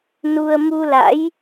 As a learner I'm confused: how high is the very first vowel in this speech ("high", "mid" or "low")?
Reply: high